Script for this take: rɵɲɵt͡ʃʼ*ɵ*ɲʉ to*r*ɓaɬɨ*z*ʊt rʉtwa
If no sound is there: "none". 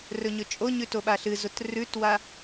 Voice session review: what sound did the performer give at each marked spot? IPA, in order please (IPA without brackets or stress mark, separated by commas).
o, none, z